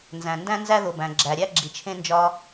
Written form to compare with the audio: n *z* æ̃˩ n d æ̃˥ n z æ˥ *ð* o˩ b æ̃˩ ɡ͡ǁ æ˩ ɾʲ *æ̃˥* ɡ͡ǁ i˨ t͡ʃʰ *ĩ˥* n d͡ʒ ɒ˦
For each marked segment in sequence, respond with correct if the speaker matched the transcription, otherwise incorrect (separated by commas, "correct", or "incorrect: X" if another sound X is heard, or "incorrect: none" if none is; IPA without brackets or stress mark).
correct, correct, incorrect: æ˥, incorrect: ẽ˥